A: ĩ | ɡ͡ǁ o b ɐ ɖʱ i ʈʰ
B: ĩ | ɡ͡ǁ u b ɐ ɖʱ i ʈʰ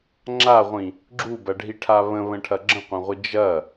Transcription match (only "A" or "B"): B